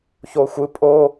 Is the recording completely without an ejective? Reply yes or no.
no